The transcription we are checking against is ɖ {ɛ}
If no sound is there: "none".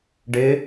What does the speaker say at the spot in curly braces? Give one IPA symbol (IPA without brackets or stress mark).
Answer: ɪ